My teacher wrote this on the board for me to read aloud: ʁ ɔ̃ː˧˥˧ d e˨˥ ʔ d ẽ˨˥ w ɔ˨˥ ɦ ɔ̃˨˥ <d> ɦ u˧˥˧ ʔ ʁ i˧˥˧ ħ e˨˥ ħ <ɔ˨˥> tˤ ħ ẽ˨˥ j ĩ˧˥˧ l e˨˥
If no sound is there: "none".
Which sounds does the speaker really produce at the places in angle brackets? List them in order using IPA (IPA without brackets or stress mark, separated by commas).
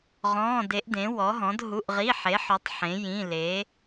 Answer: d, ɔ˨˥